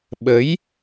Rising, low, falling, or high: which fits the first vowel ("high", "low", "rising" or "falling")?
rising